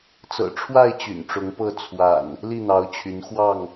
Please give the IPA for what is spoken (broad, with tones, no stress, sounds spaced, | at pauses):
t͡s ɤ̰˨˩ ʈ͡ʂʰ w a˥˨ ɪ̯ t͡ɕ y̰˨˩ n ʈ͡ʂ ʊ˨˦ ŋ p ɤ˥˨ t͡sʰ w a̰˨˩ n | l i˥˨ n̪ ɑ˨˦ ʊ̯ t͡ɕʰ y˨˦ n x w ɑ˥˨ ŋ